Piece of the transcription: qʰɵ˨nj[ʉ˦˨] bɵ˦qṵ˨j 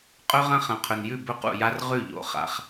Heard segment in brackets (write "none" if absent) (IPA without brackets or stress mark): ʉ˦˨